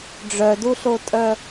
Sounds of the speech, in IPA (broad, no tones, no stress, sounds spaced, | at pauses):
ɖ͡ʐ œ d u ɬ o tʼ œ